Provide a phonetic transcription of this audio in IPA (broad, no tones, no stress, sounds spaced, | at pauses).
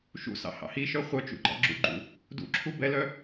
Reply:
ʃ ṵ s ɑ̰ h ɑ̰ h i ʃ œ χʷ œ t͡ʃ ṵ ɡ͡ǃ ɑ̰ ɡ͡ǁ ṵ ɡ͡ǃ ṵ | d ṵ ǁʰ u b ɛ l œ